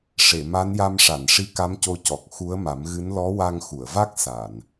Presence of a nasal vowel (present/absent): absent